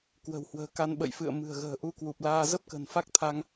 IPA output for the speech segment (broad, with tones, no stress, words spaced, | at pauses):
kwə̤˨˩whwə̤ː˨˩ ka˧nɓə̰˧˨jfɨ̰˧˨ə̯ mɨ̤˨˩ə̯ɣə̤ː˨˩ ʔu˧kwu˨˩p̚laː˧ zə˦˥p̚kə̤˨˩n fa˦˥k̚t̪ʰa˧ŋ